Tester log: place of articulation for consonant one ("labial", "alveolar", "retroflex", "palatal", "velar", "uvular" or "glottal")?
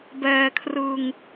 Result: labial